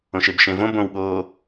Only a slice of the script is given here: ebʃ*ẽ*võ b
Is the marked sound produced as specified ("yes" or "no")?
yes